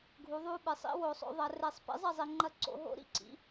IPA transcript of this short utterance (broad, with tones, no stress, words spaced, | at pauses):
ɡʱu˩˥ðˤu˧˥˧ɓɨ˨˩˦ sˤḭ˦˥ wo˨˩˦sˤo̰˨˩˦ðˤɐ˨˩˦ re˨˩˦sˤpḭ˩˥zˤɐ˥˩ zˤi˨ŋ͡ǃɐ˥˩ǀo̰˨˩˦ɦo̰˦˥ ɾḭ˧˥˧ǀḭ˩˥